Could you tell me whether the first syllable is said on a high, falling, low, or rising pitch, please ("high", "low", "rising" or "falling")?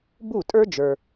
falling